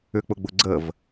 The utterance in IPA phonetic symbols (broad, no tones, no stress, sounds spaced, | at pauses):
ʏ k͡p ʊ ɡ͡b ʊ ɡ͡ǀ ə v